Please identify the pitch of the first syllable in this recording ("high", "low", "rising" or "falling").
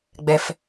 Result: low